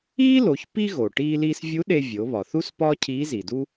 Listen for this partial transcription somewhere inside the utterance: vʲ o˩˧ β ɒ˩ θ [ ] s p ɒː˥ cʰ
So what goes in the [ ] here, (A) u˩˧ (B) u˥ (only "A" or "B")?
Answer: B